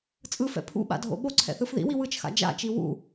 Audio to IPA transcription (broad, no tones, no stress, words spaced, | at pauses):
t͡sʼɯfɛ̰ pʰṵɓa̰dʱo̰ ɓoǀʰɛ̰θɯf ðḭwi wɯt͡ʃxa̰ d͡ʒa̰t͡ʃi wṵ